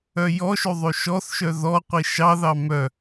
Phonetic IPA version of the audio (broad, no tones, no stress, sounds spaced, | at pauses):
œ j ɔ ʃ ø ðˤ ø ʃ ɔ θ ʃ œ ð ɔ qʷ i ʃ ɑ ð ɑ m œ